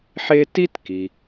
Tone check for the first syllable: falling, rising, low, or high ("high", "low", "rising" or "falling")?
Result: high